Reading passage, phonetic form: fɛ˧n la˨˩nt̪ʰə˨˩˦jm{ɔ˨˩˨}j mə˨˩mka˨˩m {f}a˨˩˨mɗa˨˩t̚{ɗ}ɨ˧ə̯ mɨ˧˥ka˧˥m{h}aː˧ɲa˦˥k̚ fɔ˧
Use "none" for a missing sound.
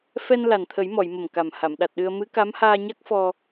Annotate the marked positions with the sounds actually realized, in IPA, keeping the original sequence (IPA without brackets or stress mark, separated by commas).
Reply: ɔ˨˩˨, h, ɗ, h